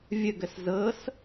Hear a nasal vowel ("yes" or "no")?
no